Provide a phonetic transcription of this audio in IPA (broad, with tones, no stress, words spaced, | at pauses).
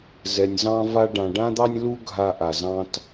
zɛ˧nʲ zɑ̃˥va˥ ɖã˧ɖã˥d̪ɑ˥nʲlu˥ ɡʱa˥ ʔa˧ zɑ̃˥t